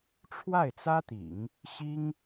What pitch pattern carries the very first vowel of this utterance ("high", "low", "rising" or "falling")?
falling